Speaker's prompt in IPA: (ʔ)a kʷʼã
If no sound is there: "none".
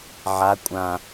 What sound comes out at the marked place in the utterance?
ʕ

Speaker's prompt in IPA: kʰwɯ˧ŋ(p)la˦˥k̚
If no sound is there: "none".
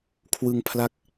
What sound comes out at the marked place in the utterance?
pʰ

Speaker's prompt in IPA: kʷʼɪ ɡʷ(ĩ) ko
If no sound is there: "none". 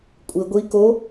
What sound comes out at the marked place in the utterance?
i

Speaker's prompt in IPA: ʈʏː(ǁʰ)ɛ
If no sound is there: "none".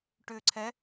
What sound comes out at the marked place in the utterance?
ǀʰ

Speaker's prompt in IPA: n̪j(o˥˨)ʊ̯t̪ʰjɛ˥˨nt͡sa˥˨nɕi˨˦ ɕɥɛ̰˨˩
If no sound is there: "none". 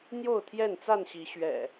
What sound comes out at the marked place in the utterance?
o˥˨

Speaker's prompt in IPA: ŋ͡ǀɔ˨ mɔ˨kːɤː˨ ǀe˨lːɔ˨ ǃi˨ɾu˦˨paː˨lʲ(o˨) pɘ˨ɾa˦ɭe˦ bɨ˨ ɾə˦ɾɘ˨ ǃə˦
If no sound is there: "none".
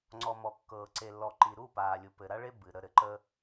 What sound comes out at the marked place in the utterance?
u˨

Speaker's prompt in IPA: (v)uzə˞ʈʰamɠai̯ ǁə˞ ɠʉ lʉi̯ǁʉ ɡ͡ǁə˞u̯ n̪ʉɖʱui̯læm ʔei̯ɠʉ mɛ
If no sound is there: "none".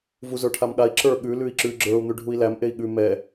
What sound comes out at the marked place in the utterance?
v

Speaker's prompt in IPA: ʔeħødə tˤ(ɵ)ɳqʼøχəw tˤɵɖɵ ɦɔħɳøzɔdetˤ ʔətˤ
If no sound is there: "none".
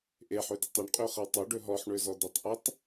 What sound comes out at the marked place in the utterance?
ɵ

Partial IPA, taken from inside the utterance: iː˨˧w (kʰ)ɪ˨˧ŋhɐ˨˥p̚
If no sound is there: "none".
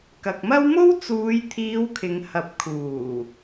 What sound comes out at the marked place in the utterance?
kʰ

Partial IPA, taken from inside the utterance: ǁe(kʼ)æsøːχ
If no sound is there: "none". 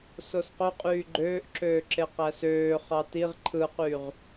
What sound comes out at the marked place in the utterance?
q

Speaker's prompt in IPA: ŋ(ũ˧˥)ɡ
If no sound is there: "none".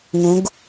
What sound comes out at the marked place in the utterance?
ũ˧˥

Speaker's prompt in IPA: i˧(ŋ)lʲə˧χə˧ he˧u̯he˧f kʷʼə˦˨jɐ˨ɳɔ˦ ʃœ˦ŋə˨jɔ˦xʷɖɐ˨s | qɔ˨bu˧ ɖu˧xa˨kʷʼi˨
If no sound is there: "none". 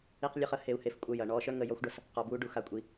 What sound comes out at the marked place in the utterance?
q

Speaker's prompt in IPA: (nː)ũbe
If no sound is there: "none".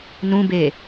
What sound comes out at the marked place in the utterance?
n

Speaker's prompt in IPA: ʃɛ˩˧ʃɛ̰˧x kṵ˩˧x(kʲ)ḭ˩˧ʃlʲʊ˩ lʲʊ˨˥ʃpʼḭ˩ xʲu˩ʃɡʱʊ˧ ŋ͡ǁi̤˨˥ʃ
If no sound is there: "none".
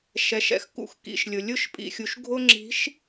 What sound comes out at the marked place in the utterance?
k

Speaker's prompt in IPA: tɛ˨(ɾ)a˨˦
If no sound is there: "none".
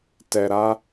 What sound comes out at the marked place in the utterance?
ɾ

